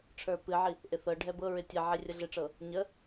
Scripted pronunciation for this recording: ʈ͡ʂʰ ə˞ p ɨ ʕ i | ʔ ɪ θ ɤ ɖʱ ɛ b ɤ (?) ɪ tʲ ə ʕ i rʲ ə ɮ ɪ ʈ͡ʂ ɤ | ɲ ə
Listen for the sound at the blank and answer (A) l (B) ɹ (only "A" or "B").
B